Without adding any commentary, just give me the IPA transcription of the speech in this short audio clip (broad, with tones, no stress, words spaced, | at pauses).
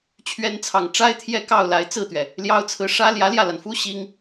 t͡ɕʰɥɛ˧˥nt͡sʰɑ˨˩ŋ ʈ͡ʂa˥ɪ̯t̪ʰjɛ˥kɑ˥˩ʊ̯ la˧˥ɪ̯t͡sɹ̩˥˩t̪ɥɛ˩ | ljɑ˥ʊ̯t͡sʰɹ̩˥˩ ʂä˥ ljä˧˥ljä˥˩la˩nfu˥ ɕi˥ŋ